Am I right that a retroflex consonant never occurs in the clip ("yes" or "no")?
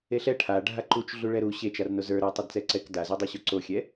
no